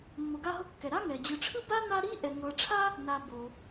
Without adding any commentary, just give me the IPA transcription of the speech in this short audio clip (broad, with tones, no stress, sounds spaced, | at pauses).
mː o˨ ɡ a˦ ɦ ɤ˦ kː ɛ˩ ɾ a˥ ŋ ɛ˩ d͡ʑ ɯ˨ ʈ͡ʂʰ ɯ˥ b a˥ n a˦ ɾ i˥ ʔ ɛ˩ ŋ ɤ˨ ʈ͡ʂʰ a˥ | n a˨ b o˩